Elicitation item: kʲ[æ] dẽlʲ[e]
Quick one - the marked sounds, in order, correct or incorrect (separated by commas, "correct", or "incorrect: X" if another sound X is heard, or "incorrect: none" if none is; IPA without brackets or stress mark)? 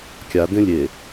incorrect: a, correct